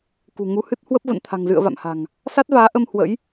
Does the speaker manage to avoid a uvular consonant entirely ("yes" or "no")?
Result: yes